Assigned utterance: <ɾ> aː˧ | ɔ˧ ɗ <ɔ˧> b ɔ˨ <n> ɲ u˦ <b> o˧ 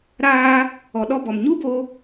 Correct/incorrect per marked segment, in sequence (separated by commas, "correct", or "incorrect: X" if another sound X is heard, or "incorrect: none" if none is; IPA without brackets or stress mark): correct, correct, incorrect: m, correct